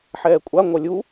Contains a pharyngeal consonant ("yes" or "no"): yes